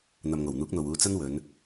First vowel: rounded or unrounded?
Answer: unrounded